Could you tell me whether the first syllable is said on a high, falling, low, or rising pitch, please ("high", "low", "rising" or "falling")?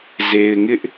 low